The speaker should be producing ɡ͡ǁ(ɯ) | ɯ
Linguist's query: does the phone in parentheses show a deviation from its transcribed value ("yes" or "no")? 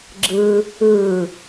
no